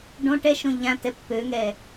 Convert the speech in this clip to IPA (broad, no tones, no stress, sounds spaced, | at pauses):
ɖ õ ʈ ɛ ʃ õ ʎ ã t ɛ pː ø ŋ ɛ